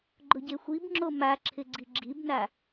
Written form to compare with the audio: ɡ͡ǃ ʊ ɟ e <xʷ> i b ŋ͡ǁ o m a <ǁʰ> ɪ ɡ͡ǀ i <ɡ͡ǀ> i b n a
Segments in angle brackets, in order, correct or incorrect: correct, correct, incorrect: ɡ͡ǁ

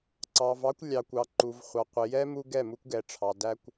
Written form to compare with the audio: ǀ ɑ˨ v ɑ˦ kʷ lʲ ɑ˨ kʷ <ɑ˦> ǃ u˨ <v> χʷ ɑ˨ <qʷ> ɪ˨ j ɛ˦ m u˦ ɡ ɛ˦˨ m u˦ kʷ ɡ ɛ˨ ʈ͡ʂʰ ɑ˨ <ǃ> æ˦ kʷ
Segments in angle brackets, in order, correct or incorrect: incorrect: ɑ˨, correct, correct, incorrect: d

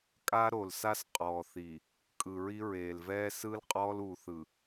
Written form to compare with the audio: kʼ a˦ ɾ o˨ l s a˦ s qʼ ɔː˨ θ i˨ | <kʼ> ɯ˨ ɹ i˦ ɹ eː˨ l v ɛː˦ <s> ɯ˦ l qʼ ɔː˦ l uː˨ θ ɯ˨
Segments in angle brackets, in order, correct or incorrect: correct, correct

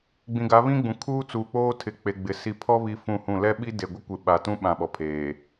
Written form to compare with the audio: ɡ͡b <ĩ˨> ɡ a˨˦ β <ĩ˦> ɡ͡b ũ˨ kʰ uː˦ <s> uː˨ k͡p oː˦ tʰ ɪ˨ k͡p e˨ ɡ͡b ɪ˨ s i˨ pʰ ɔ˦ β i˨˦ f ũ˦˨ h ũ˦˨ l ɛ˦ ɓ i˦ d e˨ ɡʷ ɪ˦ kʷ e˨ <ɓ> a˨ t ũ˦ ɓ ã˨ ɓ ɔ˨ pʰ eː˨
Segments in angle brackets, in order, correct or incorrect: correct, correct, incorrect: t͡s, correct

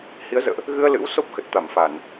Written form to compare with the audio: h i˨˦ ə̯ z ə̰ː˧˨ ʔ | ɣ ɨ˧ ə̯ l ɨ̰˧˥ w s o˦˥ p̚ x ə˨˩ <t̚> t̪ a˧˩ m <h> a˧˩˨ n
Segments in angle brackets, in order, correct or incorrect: correct, incorrect: f

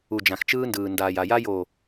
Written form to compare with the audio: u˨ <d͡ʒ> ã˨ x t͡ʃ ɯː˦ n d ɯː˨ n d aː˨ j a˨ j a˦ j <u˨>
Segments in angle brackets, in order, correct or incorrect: correct, incorrect: o˨

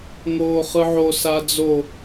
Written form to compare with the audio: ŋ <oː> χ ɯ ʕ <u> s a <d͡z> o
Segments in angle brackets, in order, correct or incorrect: correct, incorrect: o, correct

